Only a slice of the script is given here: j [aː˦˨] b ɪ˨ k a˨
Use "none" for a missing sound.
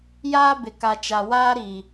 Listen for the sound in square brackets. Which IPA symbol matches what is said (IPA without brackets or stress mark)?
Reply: aː˦